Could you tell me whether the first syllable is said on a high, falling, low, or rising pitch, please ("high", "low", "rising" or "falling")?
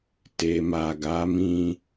low